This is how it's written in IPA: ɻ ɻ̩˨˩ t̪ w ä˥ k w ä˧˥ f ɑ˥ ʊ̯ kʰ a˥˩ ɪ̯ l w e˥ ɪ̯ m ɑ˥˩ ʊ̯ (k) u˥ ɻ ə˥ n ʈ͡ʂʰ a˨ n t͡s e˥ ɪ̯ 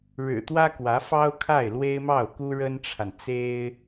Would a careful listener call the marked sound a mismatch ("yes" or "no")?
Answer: no